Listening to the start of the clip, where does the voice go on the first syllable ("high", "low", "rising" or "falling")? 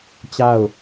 falling